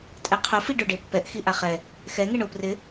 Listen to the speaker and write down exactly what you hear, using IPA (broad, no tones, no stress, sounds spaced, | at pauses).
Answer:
tʼ ɛ qʰ ʊ f i ɖ ʊ ɖ e pː ɛ ʔ x i ʔ a χ ɛ | x ɛ ŋ e ɳ ʊ p r ɪ